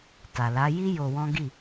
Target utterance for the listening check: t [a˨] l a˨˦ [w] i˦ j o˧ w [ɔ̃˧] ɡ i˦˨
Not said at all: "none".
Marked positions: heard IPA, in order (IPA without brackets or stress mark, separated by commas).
a˨, j, ɔ̃˦